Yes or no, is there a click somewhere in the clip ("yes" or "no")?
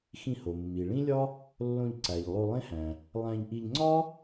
yes